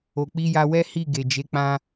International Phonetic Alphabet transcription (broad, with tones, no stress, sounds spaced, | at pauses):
o˨ k͡p i˧ j a˧ w ɛ˦ h i˦˨ ɡ e˨ d͡ʒ e˨˦ k͡p ã˧